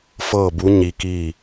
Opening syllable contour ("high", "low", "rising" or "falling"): falling